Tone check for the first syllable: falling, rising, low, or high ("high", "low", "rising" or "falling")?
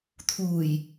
low